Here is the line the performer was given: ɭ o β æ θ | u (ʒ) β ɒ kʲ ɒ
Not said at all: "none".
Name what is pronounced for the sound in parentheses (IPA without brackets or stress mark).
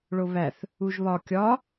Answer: ʒ